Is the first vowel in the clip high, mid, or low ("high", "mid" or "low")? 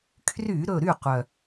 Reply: high